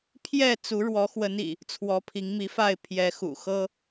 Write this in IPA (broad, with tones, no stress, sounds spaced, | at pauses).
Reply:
pʰ j ɛ˥˨ t͡s u˨˦ ɻ w ɔ˨˦ x w ə˨˦ n ḭ˨˩ | t͡sʰ w ɔ˨˦ pʰ i˨˦ ŋ m i˨˦ f a˥˨ ɪ̯ pʰ j ɛ˨˦ x ṵ˨˩ x ɤ˦